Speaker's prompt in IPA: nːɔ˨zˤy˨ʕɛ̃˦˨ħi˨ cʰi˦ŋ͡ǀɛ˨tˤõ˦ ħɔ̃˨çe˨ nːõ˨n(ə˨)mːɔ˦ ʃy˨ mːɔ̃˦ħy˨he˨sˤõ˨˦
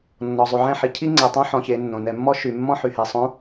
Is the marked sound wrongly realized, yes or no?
yes